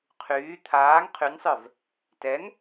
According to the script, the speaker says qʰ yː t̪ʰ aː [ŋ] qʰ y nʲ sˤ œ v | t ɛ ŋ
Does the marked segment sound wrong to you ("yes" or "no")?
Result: no